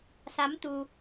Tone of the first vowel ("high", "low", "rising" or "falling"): rising